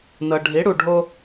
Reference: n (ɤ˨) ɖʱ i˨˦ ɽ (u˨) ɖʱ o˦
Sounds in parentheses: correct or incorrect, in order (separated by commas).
correct, correct